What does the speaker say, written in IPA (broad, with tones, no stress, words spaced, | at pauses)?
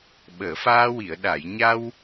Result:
ɓəː˨˩˨faː˧wi˨˩˨ə̯ ɗa˨˩˨jɲa˧w